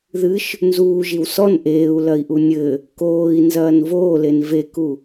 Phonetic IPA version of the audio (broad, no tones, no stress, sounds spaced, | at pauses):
ð ɨ ʃ | n z uː ʒ i w s ɔ n ʔ eː u̯ l ɐ i̯ ʔ u nʲ ɘ | k oː i̯ n z ɐː n v oː l e n v e k u